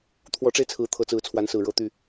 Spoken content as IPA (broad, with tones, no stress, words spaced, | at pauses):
t̪ʰwɔ˨˦ʈ͡ʂe˧ɪ̯t͡sʰɹ̩˨˦ t̪ʰɤ˨˦t͡sɹ̩˨˦ t͡sʰwa˨˦nsɹ̩˨˩ ɻɤ˥˨t̪y˥˨